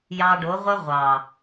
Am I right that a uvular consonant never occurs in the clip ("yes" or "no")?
no